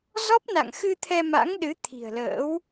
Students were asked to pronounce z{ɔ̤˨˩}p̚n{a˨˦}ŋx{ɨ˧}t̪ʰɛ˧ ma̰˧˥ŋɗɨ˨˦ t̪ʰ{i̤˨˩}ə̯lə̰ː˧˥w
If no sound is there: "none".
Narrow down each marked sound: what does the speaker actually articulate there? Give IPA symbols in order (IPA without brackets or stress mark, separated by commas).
ɔ˦˥, a̰˧˨, ɨ˧, i̤˨˩